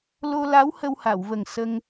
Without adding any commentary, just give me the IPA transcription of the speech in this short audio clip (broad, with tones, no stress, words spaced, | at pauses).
lo˧la˧˥w hə˧wha˨˩˨wvə˨˩ŋ sə˧ŋ